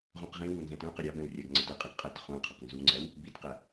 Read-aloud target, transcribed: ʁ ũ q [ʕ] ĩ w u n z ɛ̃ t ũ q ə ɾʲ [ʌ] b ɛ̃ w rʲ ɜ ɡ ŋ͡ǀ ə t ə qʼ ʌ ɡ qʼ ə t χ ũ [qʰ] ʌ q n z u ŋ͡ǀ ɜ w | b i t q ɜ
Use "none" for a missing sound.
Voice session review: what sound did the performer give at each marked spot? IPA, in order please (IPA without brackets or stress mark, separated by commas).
ʁ, ɑ, qʰ